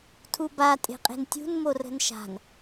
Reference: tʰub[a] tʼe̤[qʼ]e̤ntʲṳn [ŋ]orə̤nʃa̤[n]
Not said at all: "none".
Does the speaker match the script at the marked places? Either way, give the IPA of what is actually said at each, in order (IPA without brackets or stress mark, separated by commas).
a, qʼ, m, n